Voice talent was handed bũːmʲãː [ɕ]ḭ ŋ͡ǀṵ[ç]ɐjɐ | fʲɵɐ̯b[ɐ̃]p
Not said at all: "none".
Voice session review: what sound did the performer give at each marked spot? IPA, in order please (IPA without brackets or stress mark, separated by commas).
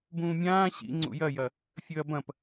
ɕ, j, ɐ̃